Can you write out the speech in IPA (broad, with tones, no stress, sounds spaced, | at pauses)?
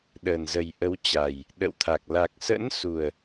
ɗ əː˨˩ n z ə˨˩ j ʔ ə˨˦ w t͡ɕ a˨˩ j | ɗ ə̰˧˨ w t̪ʰ a˨˩ k̚ l a˨˩ k̚ s ə̰˧˥ n s u˨˩ ə̯